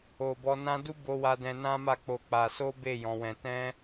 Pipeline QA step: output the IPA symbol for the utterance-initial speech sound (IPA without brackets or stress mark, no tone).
o